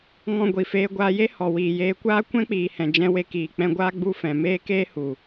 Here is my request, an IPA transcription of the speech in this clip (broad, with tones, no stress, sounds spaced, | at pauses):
ŋ ɔ̃˧ ɡʷ i˨ f eː˧ ɡʷ aː˧ j e˦ h ɔ˨ w iː˨ j eː˧ kʷ aː˦ kʷ ɛ̃˦ k͡p iː˨ h ɛ̃˨ d͡ʒ ɛ̃˧ w e˧ k iː˨ k͡p ɛ̃˧ ɡʷ aː˦ ɡ͡b u˦ f ɛ̃˨ m eː˦ k eː˦ h u˨